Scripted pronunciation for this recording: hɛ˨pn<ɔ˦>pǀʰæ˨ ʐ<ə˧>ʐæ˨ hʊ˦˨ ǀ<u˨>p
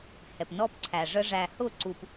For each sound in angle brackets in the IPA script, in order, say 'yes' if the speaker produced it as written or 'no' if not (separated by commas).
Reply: yes, yes, yes